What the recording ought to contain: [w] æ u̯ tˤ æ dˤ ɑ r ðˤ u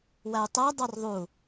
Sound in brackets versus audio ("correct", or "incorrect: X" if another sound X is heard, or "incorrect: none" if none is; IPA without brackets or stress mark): correct